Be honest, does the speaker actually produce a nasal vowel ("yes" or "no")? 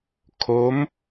no